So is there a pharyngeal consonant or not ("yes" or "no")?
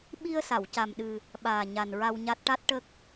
no